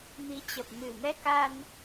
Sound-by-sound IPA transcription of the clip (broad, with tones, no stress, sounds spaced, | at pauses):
m i˨˦ t͡ɕ ə˨˩ p̚ m ɨ˨˩ m ɛ˧ k a˧ n